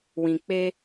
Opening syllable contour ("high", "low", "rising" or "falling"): low